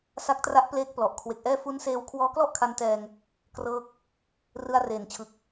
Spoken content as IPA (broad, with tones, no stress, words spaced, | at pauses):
sa˦˥k̚tra˦˥ʔpleː˦˥k̚ plɔ˨˩ʔ kʰwe˨˩k̚ʔɛː˥˩ fu˦˥nseː˧w kʰwɔː˦˥klɔ˥˩ʔkʰa˧n tɛː˧ŋ | krɤː˦˥k̚ | rɯ˧a̯reː˨˩nt͡ɕʰɯ˨˩k̚